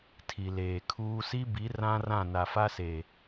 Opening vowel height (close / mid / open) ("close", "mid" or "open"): close